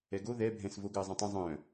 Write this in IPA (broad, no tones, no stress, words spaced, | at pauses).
ɛɡo ðɛ bʱɛ̃svoɡəː zˤə̃tˤə̃ zˤœ̃